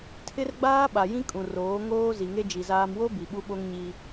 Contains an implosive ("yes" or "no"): yes